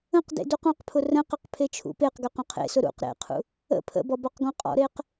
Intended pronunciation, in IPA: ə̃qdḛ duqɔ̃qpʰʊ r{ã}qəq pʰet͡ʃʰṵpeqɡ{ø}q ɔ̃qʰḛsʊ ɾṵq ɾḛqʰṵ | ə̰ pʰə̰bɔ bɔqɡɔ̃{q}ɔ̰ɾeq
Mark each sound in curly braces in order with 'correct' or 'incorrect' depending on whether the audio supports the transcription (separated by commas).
incorrect, correct, incorrect